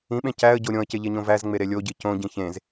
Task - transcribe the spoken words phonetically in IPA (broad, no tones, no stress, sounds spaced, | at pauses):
ĩ ɓ ẽ c æ ə̯ ɟ o ɾʲ õ ə̯ c e ʎ e ɲ õ v æ z ŋ͡m e ɾ e lʲ o ɟ i c õ ɟ ĩ ç ẽ z